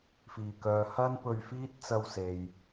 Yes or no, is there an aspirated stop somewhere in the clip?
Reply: no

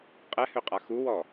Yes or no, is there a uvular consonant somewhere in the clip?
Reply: yes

